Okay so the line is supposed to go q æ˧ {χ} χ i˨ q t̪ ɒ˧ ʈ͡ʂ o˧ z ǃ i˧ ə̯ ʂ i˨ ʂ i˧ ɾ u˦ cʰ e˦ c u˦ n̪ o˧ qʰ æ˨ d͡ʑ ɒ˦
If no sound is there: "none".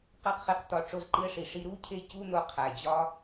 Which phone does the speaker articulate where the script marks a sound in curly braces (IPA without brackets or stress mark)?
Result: q